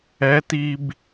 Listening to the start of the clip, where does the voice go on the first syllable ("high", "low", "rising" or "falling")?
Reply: rising